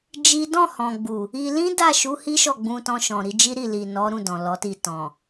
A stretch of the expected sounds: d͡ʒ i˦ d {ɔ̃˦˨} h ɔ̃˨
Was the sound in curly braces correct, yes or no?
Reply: yes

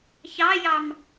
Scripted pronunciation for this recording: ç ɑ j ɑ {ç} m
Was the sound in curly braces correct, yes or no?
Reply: no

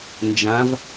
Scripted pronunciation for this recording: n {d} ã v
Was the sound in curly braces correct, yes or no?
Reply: no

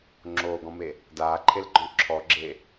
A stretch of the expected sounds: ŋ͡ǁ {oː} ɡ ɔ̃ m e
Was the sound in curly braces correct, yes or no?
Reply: yes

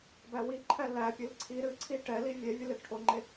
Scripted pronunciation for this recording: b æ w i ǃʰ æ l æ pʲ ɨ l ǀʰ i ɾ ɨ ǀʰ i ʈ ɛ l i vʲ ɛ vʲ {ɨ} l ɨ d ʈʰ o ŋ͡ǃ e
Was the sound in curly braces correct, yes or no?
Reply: yes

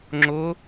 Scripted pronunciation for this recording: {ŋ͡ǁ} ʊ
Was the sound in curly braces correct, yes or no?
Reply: yes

